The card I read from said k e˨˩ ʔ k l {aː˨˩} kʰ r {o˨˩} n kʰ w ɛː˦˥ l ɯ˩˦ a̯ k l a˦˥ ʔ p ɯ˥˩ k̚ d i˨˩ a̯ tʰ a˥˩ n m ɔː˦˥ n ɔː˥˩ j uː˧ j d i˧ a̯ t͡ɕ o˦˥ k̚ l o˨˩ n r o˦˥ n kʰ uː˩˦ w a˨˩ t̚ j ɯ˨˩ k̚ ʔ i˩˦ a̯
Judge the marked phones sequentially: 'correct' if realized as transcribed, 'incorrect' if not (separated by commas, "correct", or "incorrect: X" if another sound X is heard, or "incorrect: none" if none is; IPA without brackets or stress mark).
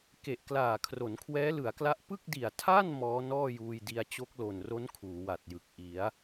correct, incorrect: o˩˦